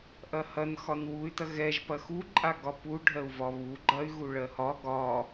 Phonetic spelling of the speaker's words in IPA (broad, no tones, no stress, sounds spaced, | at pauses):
ʔ ɐ h ɐ n x ɒ n w u y̯ t ɐ ɣ ɛ ʒ p ɐ x u ǃʼ a ɡ ɒ p u ɖʱ ɜ u̯ v ɒ β u ɡ͡ǃ ɐ y̯ ɣ u ɭ ɜ h ɒ ɡ ɒ